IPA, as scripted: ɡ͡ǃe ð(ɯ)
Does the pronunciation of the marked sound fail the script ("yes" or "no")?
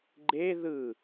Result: no